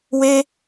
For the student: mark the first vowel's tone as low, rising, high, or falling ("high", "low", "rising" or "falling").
high